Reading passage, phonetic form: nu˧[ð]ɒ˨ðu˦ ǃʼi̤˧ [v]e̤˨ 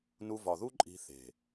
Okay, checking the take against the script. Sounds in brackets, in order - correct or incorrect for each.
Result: incorrect, incorrect

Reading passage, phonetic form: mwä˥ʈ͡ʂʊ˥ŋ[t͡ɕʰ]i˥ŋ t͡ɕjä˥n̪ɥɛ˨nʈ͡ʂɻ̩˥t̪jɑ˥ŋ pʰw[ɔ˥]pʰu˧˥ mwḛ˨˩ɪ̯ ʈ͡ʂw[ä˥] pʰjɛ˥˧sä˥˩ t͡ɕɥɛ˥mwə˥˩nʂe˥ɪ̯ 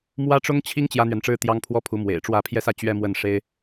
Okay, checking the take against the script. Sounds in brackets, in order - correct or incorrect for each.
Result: correct, correct, incorrect

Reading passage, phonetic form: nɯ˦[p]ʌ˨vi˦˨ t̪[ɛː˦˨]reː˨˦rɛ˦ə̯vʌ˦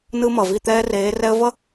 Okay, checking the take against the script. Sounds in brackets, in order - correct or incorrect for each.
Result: incorrect, incorrect

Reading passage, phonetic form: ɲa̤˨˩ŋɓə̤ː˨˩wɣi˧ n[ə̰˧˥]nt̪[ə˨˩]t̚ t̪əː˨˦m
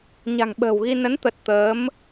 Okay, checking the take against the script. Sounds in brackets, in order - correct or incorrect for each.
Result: incorrect, correct

